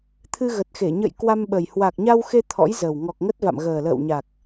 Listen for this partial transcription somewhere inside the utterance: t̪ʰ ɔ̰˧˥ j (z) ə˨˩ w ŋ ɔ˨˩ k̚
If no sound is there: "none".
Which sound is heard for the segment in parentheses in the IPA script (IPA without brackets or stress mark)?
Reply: z